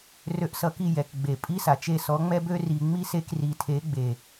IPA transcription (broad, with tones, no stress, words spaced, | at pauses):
rø˧ʔsʌ˧ki˦˨ jɛ˨k ɡ͡be˨pʼi˦sa˨t͡ʃe˦˨ sɔ˨˦ŋ͡mɛ˦bø˦ ri˨ŋ͡mi˦se˧k ri˨ tʰe˨˦ɡ͡be˨